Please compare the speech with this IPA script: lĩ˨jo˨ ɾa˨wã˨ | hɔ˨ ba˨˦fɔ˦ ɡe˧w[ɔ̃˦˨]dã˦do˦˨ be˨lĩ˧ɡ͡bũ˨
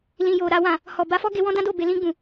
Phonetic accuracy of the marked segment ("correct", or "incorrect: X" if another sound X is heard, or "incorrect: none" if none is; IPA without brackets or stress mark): incorrect: ɔ̃˦